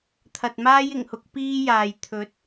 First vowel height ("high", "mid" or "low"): low